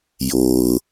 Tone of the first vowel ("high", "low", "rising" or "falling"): low